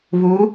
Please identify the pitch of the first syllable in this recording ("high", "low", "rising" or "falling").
rising